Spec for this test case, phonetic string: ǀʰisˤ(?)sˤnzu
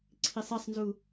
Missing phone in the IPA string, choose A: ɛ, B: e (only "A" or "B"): A